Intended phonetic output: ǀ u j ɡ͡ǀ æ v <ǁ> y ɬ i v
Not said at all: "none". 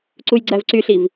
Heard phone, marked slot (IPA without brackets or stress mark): ǀ